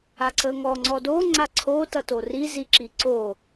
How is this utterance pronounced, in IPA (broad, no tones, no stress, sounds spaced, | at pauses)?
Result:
a ǀ ə ŋ ɔ ŋ͡ǀ ɔ d o ŋ͡ǀ a ǀʰ o t ʌ t o r i z i ǁ i ǀ o